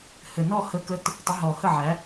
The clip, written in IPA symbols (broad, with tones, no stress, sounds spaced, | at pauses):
h ɘ˨˩ n ɔ˥˨ h ə˨˦ k ə˨˦ t | tˤ ə˨˦ ɦ ɔ˨˩ h ə˥˨ ʕ æ˨˦